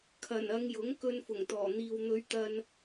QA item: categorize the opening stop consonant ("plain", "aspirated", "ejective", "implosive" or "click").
aspirated